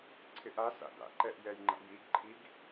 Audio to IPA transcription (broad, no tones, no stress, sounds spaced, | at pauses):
ǀʰ ɪ ʔ a s a̰ d a̰ ǃ ɛ ʔ j ɛ j ŋ͡ǃ a̰ j i ɡ ǃʰ i ɡ